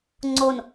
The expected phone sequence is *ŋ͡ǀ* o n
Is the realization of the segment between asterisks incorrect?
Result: no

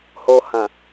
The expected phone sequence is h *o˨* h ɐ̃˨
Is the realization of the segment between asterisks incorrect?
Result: no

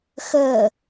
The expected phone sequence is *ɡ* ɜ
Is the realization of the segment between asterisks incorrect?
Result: yes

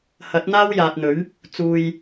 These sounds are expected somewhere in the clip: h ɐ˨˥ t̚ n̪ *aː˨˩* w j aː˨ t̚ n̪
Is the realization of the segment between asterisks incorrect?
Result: yes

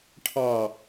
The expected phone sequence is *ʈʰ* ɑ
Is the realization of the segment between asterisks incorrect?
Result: no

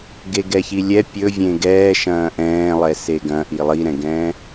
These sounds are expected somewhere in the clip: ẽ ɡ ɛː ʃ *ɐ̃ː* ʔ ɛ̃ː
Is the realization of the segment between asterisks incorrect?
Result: no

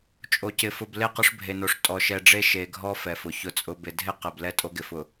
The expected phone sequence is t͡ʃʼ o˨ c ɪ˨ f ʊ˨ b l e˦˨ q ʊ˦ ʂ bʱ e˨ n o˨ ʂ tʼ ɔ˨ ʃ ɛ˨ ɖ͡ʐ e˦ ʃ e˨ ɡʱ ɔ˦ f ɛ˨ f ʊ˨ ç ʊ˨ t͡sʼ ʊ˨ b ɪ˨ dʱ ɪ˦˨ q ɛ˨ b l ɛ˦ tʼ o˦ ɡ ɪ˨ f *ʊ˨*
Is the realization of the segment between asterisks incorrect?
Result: no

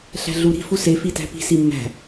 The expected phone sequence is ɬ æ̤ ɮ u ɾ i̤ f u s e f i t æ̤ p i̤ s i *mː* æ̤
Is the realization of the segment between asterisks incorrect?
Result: no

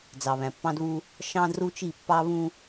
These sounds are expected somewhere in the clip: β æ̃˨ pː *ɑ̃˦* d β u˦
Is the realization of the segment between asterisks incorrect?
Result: no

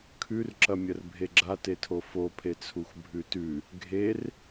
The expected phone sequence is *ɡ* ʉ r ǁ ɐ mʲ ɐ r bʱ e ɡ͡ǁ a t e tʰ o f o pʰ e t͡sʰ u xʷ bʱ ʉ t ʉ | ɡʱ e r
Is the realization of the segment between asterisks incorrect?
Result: yes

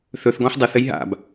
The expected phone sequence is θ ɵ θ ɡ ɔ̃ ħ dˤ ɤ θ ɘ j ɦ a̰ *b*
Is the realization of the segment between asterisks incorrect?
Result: no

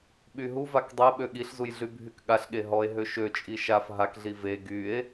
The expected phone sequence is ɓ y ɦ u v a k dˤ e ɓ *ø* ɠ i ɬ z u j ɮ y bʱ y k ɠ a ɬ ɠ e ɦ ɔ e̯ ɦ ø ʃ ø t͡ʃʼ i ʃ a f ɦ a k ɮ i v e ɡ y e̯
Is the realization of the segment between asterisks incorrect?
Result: no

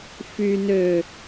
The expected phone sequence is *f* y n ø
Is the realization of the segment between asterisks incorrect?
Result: no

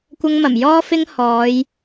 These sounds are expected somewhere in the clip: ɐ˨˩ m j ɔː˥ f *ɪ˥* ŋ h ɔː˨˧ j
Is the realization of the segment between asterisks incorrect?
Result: no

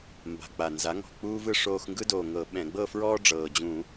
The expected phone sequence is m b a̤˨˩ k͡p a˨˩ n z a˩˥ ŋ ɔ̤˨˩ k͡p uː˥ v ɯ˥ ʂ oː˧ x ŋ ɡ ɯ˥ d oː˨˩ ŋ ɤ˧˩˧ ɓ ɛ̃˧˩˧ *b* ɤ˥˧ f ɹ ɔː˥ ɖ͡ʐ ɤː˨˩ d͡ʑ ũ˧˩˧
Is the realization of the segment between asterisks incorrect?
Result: yes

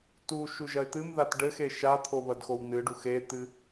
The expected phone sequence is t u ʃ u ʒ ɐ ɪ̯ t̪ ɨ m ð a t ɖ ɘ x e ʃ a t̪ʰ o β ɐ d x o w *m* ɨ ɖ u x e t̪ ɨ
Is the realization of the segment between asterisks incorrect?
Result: yes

